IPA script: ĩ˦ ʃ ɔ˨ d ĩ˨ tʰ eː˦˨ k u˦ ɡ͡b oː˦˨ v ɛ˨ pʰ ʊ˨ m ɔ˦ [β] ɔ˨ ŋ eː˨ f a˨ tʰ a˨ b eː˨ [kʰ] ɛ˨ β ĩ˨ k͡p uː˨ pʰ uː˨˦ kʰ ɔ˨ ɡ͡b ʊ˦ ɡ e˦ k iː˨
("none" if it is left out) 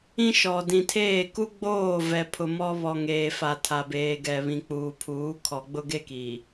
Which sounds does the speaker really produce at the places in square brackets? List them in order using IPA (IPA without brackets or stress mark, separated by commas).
β, ɡ